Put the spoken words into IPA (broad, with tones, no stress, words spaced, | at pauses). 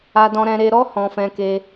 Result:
a˧dɔ̃˧ɾɛ̃˧ ɾe˧ɾɔ˦ hɔ̃˧fɛ̃˧ke˧